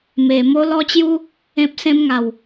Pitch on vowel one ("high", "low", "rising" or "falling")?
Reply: low